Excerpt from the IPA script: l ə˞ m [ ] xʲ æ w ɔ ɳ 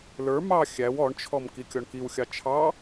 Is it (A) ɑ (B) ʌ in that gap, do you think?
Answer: A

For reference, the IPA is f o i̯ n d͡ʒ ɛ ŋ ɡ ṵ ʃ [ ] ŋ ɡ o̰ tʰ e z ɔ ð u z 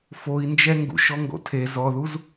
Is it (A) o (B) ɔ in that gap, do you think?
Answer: B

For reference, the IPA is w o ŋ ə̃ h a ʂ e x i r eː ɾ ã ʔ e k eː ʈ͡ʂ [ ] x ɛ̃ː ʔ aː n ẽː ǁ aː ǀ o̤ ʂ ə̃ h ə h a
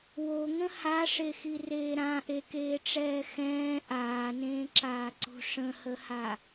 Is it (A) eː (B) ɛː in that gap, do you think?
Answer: B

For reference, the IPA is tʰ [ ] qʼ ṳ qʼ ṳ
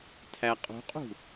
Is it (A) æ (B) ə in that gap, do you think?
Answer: A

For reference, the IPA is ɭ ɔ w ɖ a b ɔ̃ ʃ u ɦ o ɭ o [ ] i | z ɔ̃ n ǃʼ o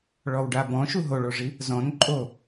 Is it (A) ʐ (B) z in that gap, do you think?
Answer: A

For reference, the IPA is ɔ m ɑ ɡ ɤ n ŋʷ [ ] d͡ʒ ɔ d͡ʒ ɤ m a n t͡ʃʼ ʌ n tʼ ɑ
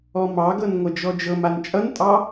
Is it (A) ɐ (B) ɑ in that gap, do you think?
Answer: A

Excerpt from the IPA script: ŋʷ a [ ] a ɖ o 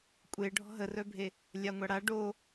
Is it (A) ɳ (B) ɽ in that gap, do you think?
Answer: B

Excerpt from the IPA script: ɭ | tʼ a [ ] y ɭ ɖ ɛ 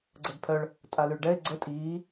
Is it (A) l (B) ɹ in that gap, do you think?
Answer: A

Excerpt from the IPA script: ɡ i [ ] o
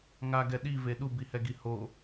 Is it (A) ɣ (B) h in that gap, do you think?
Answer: B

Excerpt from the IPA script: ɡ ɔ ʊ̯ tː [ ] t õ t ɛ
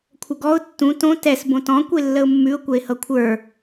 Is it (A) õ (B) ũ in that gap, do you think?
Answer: B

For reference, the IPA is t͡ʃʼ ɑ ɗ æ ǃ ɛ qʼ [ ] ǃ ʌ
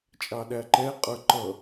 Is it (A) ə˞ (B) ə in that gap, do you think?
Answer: A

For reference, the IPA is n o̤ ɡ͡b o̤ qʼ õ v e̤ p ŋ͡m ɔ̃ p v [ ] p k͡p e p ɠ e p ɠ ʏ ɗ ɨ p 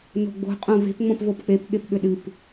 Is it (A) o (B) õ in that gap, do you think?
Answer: A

